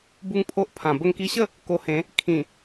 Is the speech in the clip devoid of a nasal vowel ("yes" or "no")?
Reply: no